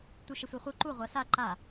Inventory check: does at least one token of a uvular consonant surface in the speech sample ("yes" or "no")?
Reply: yes